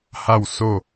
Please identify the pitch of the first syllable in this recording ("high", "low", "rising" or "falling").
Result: falling